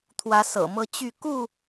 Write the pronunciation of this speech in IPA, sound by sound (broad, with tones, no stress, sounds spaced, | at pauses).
t̪ʰ w ä˨˦ s ɤ̰˨˩ m ɤ˦ t͡ɕ y˥˨ k u˥˨